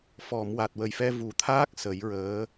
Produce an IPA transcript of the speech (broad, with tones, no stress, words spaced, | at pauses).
fɔ˨˩˨m wa˨˩t̚wə˨˩jfɛ˧ vu˨˩˦t̪ʰaː˦˥k̚ sə˨˩˦jɹəː˧˥